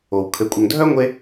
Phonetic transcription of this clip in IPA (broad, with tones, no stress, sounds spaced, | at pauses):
o˩ w kʰ ɘ˨ kʷʼ œ˨ ŋ dʱ œ˥ ŋʷ e˦